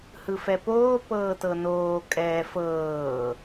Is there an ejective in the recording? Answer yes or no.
yes